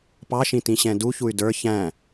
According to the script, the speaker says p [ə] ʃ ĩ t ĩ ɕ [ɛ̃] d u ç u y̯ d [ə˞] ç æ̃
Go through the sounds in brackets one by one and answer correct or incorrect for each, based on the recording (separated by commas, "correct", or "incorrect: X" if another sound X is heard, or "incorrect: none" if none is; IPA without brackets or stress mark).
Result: incorrect: ɑ, correct, correct